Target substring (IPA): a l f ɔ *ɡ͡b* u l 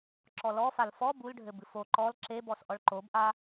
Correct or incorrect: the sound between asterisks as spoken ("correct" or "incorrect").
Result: incorrect